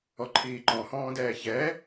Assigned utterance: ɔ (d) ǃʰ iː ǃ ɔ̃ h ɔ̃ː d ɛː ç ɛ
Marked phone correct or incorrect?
incorrect